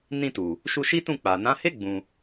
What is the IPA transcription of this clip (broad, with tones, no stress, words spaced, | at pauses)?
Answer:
nĩ˧tu˨ | ʃu˧ʃi˦tũ˦˨ k͡pa˨nã˨˦he˦ ɡ͡bũ˧